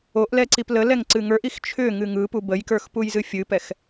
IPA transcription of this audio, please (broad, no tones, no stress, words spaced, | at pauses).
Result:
oʔlɛǀip ləlɛŋǀɨ ŋə˞ʔix t͡ʃʰʏŋɨ ŋɯpu bəjkə˞xpujzɨ fʲɨpɛx